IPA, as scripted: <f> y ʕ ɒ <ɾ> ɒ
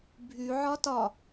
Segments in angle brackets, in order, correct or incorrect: incorrect: bʱ, incorrect: t

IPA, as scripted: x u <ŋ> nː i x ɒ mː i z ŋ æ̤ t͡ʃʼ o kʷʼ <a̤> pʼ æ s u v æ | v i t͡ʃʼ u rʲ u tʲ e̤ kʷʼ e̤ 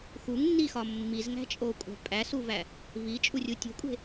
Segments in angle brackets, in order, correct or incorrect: correct, incorrect: æ̤

